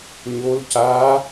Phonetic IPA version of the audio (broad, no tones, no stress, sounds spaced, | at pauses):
ɲ o l c a